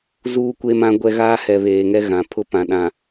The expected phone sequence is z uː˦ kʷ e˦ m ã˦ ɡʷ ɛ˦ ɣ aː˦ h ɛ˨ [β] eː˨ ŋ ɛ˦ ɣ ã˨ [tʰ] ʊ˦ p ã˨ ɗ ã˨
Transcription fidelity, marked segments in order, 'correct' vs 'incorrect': correct, incorrect: pʰ

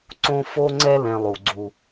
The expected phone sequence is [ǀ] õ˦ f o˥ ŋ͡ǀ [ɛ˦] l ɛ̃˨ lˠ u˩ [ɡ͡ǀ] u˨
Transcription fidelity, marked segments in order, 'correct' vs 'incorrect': correct, correct, correct

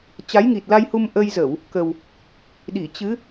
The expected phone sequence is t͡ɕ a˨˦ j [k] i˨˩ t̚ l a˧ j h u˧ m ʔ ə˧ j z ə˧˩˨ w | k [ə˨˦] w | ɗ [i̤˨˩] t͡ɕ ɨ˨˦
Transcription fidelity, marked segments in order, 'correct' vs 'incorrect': incorrect: ŋ, incorrect: ə˨˩, incorrect: i˧˩

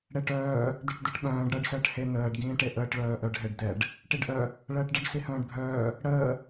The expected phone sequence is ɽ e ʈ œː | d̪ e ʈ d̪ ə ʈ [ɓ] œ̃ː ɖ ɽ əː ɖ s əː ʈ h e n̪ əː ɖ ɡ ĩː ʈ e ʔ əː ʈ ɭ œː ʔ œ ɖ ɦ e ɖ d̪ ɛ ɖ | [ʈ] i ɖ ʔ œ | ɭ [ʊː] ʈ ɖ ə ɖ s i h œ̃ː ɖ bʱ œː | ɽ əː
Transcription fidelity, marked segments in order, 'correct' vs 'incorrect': correct, correct, incorrect: əː

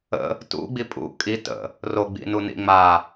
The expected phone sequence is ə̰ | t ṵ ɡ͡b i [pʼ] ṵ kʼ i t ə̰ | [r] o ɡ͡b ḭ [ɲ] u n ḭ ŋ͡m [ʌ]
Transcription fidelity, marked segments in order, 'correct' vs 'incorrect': correct, correct, incorrect: n, incorrect: a

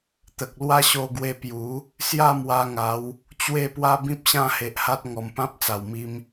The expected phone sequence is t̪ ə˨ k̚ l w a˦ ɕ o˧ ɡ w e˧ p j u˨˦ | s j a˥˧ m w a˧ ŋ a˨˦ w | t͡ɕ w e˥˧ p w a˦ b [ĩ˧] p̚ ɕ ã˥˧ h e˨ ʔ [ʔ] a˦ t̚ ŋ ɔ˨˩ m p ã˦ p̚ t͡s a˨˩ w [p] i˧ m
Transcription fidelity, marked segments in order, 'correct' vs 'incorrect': incorrect: ĩ˦, incorrect: h, incorrect: m

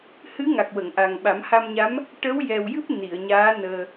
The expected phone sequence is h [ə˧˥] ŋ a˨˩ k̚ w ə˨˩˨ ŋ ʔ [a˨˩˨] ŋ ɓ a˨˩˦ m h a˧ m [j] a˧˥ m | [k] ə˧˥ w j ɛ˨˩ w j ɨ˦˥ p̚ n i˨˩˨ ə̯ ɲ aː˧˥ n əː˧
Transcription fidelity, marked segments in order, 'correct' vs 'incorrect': incorrect: ɨ˧˥, incorrect: a˨˩, incorrect: ɲ, incorrect: ʈ

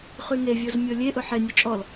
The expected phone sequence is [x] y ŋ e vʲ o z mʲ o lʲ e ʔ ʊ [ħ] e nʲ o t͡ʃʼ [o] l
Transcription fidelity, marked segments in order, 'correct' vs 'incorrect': incorrect: χ, correct, incorrect: ɔ

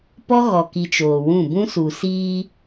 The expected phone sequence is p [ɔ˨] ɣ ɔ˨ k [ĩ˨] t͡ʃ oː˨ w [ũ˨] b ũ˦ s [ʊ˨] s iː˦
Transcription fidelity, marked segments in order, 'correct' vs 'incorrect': incorrect: ɔ˦, incorrect: i˨, incorrect: ũ˦˨, incorrect: u˨

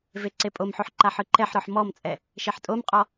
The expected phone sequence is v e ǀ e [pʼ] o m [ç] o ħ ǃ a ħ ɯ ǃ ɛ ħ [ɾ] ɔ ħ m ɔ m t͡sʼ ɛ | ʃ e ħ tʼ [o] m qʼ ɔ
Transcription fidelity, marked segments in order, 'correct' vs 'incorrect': correct, incorrect: ħ, correct, correct

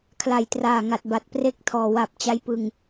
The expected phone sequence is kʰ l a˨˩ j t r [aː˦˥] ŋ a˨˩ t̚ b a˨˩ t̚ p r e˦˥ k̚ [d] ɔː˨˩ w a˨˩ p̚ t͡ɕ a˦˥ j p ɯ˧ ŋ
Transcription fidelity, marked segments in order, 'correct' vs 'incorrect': incorrect: aː˨˩, incorrect: tʰ

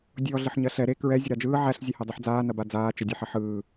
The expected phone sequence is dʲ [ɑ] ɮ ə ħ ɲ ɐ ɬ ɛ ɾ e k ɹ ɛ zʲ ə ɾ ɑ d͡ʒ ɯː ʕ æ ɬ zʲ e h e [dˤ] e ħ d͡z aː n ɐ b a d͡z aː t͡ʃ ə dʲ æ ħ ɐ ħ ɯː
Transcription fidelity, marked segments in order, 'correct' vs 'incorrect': incorrect: ɔ, correct

